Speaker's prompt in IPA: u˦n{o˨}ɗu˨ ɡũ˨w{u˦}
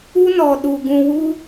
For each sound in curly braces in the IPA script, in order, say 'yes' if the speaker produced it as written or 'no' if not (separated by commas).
no, no